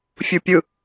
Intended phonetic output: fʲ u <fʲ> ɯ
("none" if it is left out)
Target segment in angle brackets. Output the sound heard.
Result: pʲ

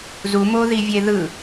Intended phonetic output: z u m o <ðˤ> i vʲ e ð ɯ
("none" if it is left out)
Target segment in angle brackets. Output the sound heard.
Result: ð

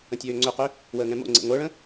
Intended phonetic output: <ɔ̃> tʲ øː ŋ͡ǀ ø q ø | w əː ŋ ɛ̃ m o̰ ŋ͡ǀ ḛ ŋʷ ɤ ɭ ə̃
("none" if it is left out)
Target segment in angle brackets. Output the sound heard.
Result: ə̃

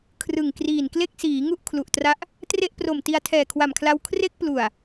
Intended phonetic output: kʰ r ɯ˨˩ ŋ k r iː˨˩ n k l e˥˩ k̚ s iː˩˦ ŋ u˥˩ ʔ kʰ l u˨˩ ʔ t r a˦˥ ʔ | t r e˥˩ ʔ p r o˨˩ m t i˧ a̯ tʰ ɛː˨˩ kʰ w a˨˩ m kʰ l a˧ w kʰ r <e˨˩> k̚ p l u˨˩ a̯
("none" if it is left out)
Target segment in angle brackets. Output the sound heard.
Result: e˥˩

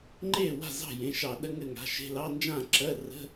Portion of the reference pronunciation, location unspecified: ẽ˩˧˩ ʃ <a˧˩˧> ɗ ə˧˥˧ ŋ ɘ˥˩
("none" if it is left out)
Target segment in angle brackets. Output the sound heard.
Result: ɑ˧˩˧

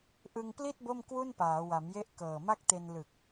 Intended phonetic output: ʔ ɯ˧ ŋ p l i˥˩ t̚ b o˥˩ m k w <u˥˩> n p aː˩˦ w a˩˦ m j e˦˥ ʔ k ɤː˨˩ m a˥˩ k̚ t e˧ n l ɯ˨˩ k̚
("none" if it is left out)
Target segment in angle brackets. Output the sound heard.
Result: u˥˩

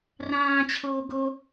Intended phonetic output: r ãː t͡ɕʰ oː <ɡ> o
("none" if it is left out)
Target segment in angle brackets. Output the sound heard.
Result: ɡ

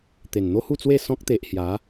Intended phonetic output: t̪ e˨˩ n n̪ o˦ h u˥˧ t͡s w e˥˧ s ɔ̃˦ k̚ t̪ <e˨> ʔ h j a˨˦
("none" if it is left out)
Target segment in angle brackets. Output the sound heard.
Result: e˨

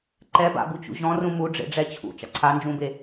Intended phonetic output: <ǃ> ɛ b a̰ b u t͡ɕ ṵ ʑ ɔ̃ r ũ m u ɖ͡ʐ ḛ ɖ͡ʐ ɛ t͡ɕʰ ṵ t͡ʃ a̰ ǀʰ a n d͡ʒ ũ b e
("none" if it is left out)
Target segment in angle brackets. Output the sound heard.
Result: ǃ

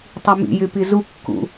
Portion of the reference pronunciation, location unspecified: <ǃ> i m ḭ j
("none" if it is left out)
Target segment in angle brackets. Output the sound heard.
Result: tˤ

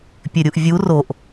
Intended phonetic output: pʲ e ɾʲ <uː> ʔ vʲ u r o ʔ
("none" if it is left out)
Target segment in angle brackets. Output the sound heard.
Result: u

